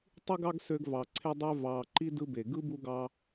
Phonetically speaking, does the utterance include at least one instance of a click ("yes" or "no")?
yes